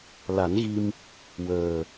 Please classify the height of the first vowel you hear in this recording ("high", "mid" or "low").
low